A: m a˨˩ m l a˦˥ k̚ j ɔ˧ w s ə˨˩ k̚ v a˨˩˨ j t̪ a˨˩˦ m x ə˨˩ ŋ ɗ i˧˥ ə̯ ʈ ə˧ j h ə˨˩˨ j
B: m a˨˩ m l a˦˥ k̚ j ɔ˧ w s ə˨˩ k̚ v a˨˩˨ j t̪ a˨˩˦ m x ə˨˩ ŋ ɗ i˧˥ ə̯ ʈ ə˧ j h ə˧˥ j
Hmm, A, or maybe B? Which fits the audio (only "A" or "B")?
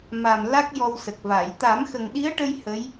B